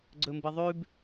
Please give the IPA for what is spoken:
ɡ͡ǀ ɵ m b ɨ ðˤ ʉ b

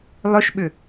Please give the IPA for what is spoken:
lˠ ʏ ʃ ɓ ʏ

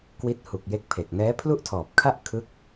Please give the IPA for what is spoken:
k w i˦˥ t̚ h u˨˩ k̚ j e˦˥ k̚ pʰ e˨˩ k̚ n ɛː˦˥ pʰ l u˥˩ ʔ tʰ ɔː˨˩ p̚ kʰ a˥˩ ʔ kʰ ɯ˦˥ k̚

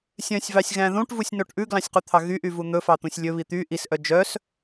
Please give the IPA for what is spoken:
sʲ œ̃ sʲ v ɑ sʲ ɣ æ̃ ð ũ ʈ v u sʲ n o ʈ ʔ ʉ ɡ l ɑ̃ sʲ q u t̪ʰ ɑ ɣ y ʔ y v u n̪ ɵ f ɑ t̪ ũ sʲ lʲ ɵ β i t̪ y ʔ i s ʔ œ d͡ʒ œ s

